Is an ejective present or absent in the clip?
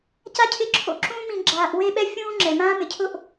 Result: absent